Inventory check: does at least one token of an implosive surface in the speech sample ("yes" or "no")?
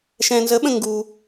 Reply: yes